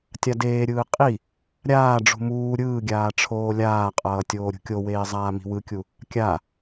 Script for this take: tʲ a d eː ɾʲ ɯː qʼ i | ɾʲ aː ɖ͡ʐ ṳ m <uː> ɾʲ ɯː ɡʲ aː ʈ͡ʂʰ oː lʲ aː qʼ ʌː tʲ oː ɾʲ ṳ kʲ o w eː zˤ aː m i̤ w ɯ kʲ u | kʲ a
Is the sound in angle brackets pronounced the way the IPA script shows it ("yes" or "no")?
yes